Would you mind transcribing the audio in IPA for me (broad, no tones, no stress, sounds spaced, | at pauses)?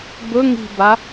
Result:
b ɵ ŋ i̤ b a